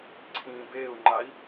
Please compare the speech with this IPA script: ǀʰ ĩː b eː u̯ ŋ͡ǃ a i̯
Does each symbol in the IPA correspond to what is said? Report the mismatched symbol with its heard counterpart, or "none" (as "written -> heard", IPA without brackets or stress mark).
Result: none